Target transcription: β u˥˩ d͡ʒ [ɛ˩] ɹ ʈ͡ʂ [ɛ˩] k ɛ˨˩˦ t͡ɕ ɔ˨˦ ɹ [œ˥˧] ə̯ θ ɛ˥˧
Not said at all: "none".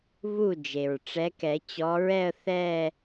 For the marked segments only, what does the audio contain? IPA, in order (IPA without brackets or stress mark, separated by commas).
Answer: e˩, ɛ˨˦, ɛ˥˧